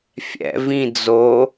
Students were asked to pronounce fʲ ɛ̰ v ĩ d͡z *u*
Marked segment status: incorrect: o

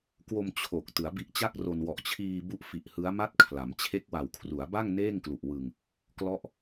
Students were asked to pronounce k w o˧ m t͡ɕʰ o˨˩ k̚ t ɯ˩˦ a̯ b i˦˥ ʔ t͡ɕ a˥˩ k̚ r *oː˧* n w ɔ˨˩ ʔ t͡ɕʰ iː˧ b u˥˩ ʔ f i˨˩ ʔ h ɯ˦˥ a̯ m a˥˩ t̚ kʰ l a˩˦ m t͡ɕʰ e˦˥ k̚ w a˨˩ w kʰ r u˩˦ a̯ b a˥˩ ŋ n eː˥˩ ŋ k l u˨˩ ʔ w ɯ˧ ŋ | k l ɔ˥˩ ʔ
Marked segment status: incorrect: o˧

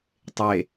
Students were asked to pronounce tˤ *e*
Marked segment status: correct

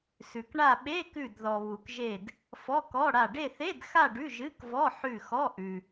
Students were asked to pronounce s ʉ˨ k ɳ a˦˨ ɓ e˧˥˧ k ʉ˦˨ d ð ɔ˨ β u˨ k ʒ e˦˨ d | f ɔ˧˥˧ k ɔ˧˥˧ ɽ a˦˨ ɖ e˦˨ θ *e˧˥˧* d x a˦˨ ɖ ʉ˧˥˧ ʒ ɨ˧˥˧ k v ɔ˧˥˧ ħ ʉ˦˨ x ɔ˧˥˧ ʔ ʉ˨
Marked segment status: correct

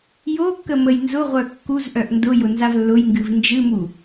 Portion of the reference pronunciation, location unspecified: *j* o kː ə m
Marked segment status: correct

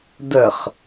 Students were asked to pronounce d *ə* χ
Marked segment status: correct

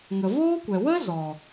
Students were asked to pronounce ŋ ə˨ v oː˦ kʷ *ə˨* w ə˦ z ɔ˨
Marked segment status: incorrect: ɛ˨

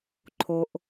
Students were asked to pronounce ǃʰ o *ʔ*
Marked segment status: correct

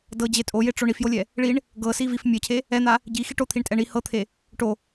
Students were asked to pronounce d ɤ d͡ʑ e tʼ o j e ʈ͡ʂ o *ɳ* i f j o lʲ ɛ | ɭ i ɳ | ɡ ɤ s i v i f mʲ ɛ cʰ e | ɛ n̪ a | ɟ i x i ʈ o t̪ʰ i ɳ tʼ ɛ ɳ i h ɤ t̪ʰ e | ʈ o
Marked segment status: correct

